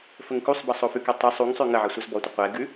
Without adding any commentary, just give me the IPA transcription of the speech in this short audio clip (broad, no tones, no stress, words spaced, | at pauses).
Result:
fəŋkusˤbʌ sˤofʉkɛ tˤə sˤuŋsˤʉ ŋəʕʌ sʷʌzbɔtʷə qʷɛɡʉ